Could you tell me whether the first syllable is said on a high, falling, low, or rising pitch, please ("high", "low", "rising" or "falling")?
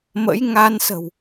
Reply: rising